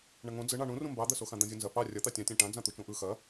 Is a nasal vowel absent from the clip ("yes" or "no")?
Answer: no